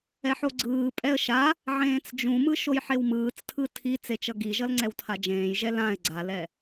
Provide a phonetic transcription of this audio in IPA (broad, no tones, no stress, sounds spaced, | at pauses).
ɛ ħ o ɡ͡ǀ ɯː pʼ ɛ ə̯ ʃ a | ʕ ẽː t͡s d͡ʒ ũ m ɯ ʃ o j ħ e w m ɯː t͡s tʰ ɯ tʰ i t͡s e t͡ʃ ʌ ɡ i ʒ ʌ l ŋ͡ǀ ɛ w tʰ a d͡ʒ ẽː j ʒ ɛ l ã ɪ̯ ɡ͡ǀ a l ɛ